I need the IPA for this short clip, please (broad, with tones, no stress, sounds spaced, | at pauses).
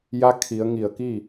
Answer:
j a˧˥ kʰ i˩˧ ə̯ ŋ i˧˩ ə̯ k i˥˨